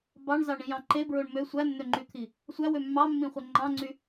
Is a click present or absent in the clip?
present